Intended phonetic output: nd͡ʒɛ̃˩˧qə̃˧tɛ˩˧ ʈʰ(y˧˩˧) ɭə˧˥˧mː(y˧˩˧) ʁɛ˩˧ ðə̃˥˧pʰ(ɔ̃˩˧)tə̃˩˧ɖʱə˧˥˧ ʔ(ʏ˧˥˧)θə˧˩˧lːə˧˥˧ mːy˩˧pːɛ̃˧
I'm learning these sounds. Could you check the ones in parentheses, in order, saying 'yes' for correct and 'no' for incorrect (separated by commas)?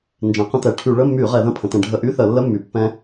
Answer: yes, yes, no, no